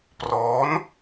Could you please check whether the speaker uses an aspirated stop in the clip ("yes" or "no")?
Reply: no